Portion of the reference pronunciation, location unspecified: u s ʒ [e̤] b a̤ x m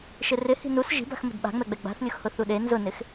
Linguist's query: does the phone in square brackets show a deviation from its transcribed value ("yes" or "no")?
yes